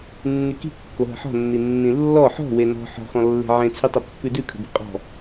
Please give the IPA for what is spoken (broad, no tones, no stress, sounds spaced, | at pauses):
nː y k i̤ kː o ɦ ə̤ ħ ɔ̤ nː i nː ĩ lː ɔ ħ ɔ̤ w e n ɔ̤ ħ ɔ̤ x ɔ̃ lː e̤ ʕ ẽ t͡sʰ y tˤ ə pː ʉ d ʉ kʰ ə̤ b i̤ qʼ ɔ̤